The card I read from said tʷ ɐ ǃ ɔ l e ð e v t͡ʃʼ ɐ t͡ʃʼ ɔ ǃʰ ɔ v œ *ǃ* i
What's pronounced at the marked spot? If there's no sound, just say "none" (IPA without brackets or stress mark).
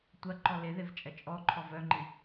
ŋ͡ǃ